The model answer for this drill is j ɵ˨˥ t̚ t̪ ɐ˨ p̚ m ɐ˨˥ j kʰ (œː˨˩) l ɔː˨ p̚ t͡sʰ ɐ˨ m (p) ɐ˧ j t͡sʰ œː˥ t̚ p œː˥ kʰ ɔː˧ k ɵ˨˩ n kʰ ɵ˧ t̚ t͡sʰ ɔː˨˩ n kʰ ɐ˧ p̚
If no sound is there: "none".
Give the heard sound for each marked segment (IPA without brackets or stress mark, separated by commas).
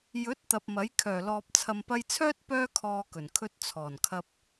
œː˨˩, p